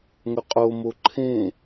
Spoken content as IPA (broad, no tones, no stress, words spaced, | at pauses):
ŋɵqʼomo ǃʰẽ